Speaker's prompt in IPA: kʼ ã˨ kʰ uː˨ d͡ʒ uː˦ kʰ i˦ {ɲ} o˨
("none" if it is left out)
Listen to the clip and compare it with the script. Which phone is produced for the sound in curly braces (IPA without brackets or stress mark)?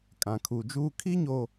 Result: ɲ